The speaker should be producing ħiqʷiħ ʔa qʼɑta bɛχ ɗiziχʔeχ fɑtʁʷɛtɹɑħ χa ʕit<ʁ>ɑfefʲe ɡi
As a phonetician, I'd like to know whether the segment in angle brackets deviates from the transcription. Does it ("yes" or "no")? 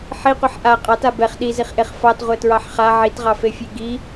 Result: no